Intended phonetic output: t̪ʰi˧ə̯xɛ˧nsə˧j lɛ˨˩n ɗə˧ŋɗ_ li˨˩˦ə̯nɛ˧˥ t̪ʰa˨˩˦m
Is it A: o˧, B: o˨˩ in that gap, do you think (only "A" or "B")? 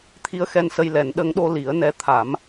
A